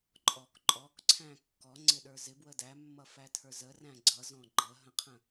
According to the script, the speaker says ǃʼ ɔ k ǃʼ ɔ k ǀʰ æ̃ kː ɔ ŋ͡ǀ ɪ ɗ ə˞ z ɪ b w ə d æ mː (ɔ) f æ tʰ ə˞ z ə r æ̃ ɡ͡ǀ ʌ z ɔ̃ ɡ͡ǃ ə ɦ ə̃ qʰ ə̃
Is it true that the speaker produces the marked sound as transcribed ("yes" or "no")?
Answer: no